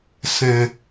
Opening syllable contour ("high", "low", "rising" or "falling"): low